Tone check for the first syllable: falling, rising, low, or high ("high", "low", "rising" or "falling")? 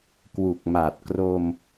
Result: low